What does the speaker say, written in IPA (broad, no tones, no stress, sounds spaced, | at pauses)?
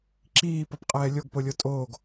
ǁ iː p ʌ p qʼ ɛː lʲ o ɡ p o lʲ o tʼ oː ɡ